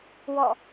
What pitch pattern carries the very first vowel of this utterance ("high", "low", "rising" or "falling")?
falling